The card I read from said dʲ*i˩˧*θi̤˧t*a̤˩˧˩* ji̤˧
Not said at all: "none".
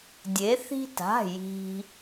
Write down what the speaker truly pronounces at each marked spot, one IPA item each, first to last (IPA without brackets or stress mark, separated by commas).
e˩˧, a̤˩˧˩